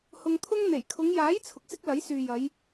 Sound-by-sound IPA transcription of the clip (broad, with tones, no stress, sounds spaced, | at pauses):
h ʊ˧ ŋ t̪ʰ ʊ˥ ŋ n̪ e˨˩ j kʰ ʊ˨˧ ŋ j aː˨˥ j t͡sʰ ʊ˨ k̚ s ɪ˥ k̚ l ɐ˨˥ j s yː˨ j ɐ˨˧ j